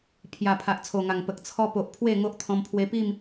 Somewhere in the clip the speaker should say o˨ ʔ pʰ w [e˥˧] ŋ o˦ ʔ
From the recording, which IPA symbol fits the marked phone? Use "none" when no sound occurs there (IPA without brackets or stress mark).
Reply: e˥˧